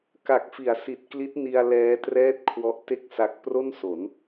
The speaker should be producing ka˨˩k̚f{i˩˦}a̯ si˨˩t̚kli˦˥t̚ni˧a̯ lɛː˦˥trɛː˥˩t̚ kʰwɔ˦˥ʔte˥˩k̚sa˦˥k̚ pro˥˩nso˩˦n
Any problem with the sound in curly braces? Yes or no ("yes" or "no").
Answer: no